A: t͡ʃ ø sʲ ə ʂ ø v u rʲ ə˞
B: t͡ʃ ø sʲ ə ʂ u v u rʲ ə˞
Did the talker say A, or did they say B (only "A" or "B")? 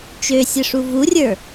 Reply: B